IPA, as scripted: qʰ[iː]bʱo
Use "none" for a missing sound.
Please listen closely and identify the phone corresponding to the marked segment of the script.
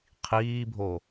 iː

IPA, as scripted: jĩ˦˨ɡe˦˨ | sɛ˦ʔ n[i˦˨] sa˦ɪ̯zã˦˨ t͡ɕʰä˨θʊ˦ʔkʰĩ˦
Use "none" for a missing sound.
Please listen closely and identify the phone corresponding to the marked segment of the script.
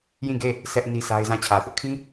i˦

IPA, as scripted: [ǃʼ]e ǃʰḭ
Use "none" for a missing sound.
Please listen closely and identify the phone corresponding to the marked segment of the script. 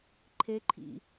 ǃʰ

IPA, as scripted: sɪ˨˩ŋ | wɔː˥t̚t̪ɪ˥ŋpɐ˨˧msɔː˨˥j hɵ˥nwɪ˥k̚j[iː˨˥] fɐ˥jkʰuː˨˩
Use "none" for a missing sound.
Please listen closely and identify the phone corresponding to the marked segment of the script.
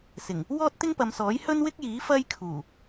iː˨˥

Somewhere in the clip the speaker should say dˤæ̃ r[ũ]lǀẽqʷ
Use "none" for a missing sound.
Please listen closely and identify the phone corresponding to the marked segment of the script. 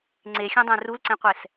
u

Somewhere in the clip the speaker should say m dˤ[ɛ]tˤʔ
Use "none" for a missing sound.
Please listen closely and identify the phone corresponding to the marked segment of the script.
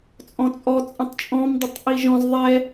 ə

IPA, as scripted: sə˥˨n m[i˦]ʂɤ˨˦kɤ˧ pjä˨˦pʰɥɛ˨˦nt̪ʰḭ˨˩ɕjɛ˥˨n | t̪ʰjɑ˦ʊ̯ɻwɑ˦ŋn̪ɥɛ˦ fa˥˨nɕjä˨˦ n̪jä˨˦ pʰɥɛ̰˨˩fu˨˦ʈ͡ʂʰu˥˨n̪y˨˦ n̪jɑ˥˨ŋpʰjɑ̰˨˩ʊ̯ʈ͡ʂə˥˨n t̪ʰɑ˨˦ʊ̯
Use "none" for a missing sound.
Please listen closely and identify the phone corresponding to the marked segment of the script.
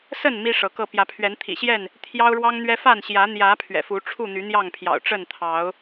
i˦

